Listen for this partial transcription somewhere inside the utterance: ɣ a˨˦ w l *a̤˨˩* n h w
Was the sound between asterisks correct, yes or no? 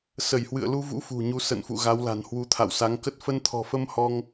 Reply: yes